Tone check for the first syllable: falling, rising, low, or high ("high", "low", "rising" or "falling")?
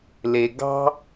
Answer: low